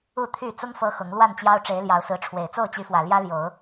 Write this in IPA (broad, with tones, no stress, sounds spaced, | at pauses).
u˥˨ t̪ʰ y˥˨ t͡s ʊ˦ ŋ f ɤ˦ x ʊ˨˦ ŋ l w a˥˨ n t͡ɕ j ɑ˦ ʊ̯ ʈ͡ʂ e˨˦ ɪ̯ l j ɑ˨˦ ʊ̯ s ɹ̩˨˦ ʈ͡ʂʰ w e˨˩ ɪ̯ t͡s o˥˨ ʊ̯ t͡ɕ y˨˦ f w ä˨˩ l j ä˦ l j o˨˦ ʊ̯